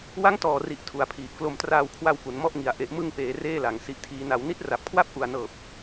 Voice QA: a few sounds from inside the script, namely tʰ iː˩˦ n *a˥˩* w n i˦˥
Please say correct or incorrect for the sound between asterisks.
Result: incorrect: a˩˦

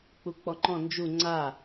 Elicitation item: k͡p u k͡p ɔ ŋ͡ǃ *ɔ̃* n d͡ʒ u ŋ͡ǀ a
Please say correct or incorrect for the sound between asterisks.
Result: correct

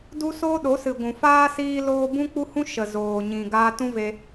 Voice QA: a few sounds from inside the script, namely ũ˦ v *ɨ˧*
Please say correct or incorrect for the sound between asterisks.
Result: incorrect: e˧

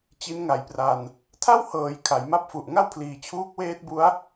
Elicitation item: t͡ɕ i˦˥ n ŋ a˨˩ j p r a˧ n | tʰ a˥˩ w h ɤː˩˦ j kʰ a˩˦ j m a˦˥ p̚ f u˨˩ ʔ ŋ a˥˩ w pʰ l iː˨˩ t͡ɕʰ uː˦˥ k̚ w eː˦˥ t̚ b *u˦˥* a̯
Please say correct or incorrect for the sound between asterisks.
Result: correct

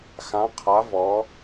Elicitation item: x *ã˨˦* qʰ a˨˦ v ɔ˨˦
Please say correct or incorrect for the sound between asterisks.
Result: correct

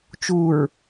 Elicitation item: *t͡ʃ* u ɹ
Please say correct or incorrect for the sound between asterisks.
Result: correct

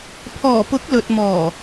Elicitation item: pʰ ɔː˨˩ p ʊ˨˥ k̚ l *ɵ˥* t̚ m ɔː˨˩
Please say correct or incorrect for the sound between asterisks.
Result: incorrect: ɵ˨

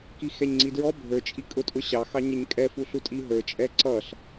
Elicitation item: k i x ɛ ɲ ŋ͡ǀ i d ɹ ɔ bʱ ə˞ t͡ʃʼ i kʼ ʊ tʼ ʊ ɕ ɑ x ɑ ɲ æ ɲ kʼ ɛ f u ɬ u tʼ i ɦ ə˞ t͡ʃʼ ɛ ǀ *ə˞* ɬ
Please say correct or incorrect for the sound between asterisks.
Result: incorrect: ʌ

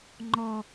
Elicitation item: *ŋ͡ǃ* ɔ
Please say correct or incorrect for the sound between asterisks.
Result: correct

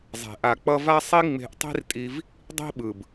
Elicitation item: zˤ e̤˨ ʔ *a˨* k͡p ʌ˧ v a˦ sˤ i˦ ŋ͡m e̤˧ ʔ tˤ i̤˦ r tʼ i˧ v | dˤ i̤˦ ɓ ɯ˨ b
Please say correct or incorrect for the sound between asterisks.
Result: correct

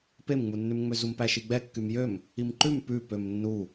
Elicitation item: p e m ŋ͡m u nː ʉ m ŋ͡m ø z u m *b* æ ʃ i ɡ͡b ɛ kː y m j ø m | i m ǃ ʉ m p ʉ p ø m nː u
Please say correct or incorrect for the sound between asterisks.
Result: incorrect: p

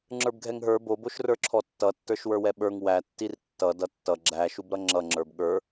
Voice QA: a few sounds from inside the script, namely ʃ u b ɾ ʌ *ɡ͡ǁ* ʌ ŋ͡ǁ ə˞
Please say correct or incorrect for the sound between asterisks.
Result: incorrect: ŋ͡ǁ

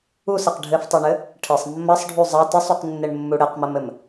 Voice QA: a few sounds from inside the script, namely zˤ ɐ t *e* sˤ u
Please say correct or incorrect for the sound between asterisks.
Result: incorrect: ɘ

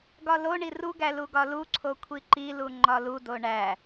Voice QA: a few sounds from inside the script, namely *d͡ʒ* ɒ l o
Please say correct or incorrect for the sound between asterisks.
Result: incorrect: ɡ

